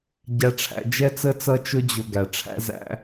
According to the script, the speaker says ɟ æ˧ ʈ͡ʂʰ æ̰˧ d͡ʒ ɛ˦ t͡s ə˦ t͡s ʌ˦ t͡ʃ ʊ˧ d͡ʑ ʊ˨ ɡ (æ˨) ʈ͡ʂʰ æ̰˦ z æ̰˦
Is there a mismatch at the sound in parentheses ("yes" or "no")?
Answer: no